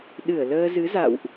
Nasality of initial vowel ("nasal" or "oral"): oral